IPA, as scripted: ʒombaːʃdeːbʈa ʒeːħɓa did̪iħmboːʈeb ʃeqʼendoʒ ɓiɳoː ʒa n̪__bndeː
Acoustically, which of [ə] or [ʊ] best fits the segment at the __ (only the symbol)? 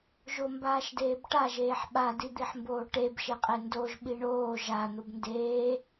ʊ